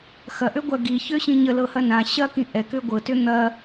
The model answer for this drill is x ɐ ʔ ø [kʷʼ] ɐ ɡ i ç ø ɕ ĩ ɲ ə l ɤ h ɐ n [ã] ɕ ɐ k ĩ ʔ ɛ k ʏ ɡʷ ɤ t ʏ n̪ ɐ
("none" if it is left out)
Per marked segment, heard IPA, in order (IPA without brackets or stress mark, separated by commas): ɡʷ, ã